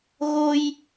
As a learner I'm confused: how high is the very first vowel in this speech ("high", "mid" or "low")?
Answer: mid